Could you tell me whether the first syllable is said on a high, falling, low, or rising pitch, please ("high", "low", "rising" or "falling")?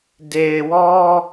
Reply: low